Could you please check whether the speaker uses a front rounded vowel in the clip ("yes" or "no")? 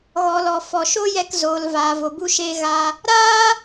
no